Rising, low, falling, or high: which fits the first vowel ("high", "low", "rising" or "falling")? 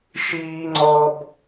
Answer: high